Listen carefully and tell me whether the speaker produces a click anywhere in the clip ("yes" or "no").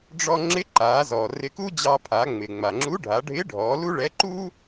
yes